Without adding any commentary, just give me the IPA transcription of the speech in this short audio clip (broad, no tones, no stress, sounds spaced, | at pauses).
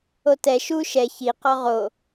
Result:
o t ɛ ʃ u ʃ ɛ ç i q ɔ ʁ o